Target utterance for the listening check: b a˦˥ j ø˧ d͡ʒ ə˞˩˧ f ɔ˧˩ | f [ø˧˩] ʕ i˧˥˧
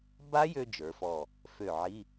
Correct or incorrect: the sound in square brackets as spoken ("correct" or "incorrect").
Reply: correct